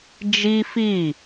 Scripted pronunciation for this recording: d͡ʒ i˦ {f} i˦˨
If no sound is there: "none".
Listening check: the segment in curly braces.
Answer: f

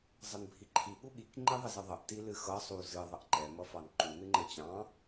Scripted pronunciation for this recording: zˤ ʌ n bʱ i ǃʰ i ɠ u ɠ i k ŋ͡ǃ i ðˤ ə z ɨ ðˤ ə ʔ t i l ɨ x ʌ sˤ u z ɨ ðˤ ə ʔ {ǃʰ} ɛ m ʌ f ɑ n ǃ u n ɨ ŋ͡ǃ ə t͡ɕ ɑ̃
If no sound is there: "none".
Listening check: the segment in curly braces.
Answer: ǃ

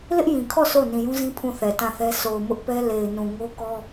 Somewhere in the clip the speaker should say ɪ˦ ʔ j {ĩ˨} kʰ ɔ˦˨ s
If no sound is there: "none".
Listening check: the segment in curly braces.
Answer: ĩ˨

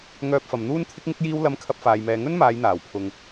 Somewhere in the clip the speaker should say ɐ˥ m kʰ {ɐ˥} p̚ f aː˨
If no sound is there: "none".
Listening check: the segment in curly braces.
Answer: ɐ˧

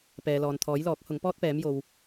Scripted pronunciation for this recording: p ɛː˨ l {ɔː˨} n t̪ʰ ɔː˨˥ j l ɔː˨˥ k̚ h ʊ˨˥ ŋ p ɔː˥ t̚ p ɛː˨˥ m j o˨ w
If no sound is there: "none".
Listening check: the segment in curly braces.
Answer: ɔː˨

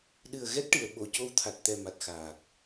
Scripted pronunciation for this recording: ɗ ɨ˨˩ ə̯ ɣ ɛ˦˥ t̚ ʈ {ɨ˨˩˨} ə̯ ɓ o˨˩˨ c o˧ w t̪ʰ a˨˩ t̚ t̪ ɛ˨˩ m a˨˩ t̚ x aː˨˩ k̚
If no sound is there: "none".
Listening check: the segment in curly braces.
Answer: ɨ˨˩˨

